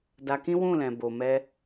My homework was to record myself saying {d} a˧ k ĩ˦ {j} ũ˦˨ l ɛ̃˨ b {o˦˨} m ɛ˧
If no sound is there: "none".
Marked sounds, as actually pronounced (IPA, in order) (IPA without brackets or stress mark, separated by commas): d, w, o˨